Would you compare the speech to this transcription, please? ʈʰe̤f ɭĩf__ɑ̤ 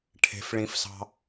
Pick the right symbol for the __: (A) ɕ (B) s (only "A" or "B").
B